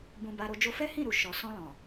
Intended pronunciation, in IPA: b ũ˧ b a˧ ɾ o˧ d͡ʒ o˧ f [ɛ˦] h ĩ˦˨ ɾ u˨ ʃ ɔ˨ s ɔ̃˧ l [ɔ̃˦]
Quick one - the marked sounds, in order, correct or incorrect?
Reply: correct, incorrect

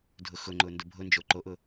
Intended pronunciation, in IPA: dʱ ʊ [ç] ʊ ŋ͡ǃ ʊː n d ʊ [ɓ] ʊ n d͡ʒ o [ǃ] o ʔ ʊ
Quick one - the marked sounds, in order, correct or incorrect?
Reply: incorrect, incorrect, correct

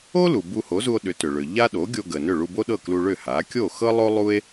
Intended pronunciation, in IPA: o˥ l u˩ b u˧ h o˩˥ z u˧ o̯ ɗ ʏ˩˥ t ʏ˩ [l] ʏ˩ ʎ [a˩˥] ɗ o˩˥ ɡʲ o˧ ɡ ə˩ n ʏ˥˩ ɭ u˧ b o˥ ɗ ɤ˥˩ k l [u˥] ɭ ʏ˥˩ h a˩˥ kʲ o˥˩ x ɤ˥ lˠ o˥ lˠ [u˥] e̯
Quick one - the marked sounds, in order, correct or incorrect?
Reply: incorrect, incorrect, incorrect, correct

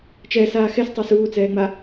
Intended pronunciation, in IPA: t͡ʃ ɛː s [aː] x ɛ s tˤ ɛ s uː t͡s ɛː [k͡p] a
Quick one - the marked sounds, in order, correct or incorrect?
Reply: correct, incorrect

